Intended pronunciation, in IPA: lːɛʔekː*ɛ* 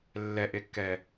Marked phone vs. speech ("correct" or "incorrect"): correct